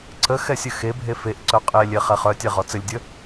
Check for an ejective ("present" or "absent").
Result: present